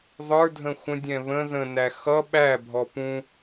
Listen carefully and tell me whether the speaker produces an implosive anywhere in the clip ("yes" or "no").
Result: yes